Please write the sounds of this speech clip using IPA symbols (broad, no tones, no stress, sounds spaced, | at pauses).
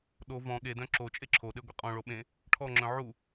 ɗ o v ɔ̃ ɠ e d œ̃ ǁ o t͡ʃʼ e ǁʰ o ɗ e ɡʷ e qʼ ɔ̃ ɭ o ɓ ẽ | ʈʰ ɔ ŋ͡ǁ œ̃ ʕ u